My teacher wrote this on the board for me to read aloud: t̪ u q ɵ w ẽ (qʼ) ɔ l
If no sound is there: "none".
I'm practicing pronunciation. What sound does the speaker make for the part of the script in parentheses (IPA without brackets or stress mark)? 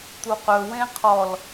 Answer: qʰ